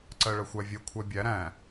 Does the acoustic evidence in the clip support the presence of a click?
yes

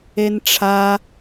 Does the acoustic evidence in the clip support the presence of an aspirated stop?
yes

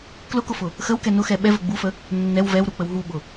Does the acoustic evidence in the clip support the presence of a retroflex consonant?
no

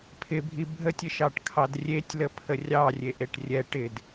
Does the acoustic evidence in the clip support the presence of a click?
no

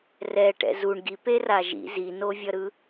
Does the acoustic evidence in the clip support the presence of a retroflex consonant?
yes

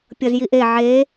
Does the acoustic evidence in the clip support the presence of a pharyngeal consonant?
yes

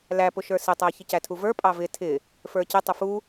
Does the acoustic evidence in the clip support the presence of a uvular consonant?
no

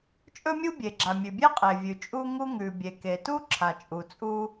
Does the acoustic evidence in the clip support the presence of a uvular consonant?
yes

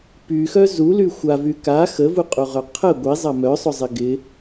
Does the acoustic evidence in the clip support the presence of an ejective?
yes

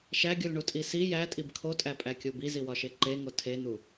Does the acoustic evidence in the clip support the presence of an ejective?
yes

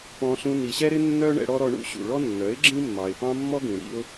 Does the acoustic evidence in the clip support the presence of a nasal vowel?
yes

